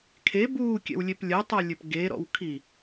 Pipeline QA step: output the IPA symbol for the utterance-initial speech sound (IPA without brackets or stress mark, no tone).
kʰ